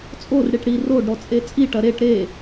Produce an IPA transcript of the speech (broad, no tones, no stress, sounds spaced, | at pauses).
t͡sʼ o r ɽ i ʈ ɽ i r o ɖ ɾ ɔ t͡sʼ e t͡sʼ i ʈ ɐ ɾ e ʈ ɾ e